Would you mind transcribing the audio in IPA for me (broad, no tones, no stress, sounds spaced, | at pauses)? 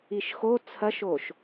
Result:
i ʃ x o t͡sʰ ɐ ʃ o ʃ